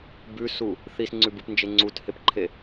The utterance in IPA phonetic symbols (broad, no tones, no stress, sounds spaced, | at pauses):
b ʉ s u | θ i s ŋ͡ǀ ʉ b ɨ p n d͡ʒ e ŋ͡ǀ u t h e p ǃʰ e